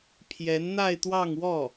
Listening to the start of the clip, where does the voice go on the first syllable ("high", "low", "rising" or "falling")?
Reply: rising